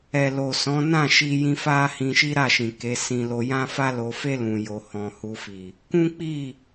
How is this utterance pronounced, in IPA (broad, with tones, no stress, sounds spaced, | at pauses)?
ɛ˨ l o˨ s ɔ̃˨˦ n ã˦˨ ʃ i˧ j ĩ˧ f a˦ h ĩ˧ ʃ i˦ ɾ a˦˨ ʃ ĩ˨ k e˨˦ s ĩ˧ l o˧ j ã˦ f a˦ l o˧ f e˦ l ũ˧ j o˧ h ɔ̃˧ h u˧ f i˨ | k ũ˦ k͡p i˦˨